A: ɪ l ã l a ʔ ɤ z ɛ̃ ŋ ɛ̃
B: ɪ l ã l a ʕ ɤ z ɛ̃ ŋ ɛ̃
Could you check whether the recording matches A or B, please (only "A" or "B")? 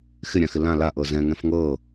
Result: A